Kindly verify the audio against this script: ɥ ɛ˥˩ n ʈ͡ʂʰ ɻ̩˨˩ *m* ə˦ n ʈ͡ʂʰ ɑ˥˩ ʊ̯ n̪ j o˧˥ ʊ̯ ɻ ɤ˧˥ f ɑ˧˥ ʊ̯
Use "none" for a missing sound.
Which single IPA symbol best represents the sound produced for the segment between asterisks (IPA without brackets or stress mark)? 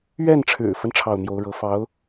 f